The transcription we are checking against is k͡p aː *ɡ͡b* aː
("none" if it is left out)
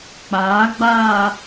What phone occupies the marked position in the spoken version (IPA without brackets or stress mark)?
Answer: ɡ͡b